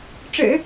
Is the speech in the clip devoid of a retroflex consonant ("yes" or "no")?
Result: no